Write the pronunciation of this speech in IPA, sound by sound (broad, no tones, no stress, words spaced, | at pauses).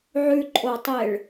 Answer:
ʕʉǃʼotˤeɭ